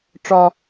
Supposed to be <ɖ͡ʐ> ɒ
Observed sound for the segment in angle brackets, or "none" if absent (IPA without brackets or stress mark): ʈ͡ʂ